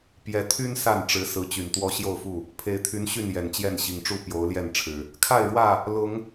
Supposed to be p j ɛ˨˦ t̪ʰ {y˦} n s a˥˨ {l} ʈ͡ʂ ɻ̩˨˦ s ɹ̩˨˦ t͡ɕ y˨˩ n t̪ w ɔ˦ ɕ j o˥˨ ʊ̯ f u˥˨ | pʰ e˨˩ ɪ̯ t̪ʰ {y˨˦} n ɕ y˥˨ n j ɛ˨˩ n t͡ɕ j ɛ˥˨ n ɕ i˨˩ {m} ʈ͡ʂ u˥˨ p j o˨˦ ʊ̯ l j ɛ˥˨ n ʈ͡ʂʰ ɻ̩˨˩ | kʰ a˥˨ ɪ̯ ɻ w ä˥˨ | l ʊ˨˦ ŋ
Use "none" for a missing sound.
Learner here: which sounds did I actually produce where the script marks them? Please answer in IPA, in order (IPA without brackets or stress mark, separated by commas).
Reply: y˦, n, y˨˦, ŋ